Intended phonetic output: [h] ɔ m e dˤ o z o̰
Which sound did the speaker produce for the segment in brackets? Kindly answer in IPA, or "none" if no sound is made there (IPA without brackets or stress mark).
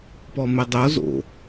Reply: p